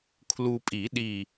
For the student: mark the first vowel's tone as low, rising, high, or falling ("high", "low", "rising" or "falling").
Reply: low